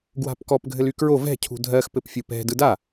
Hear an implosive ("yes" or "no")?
no